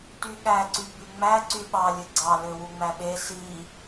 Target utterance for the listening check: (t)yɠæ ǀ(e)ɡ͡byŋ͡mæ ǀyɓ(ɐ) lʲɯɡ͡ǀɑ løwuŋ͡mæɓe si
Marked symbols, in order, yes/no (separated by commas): yes, no, no